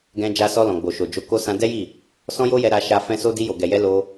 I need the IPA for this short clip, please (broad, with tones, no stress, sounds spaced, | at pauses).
ɡ ɛ̃˧ d͡ʒ a˧ s ɔ˧ l ɔ̃˨ ɡ͡b o˨ ʃ o˨ d͡ʒ o˨˦ k o˧ s ã˧ d ɛ˦ j i˦˨ | s ɔ̃˦ j o˦ j ɛ˧ ɾ a˧ ʃ a˧ f ɛ̃˦ s o˦ d i˧ j o˨ ɡ ɛ˨ j ɛ˧ l o˧